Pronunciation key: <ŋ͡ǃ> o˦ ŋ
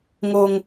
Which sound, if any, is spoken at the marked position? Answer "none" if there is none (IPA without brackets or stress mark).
ŋ